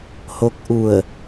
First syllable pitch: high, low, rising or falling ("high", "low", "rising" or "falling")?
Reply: rising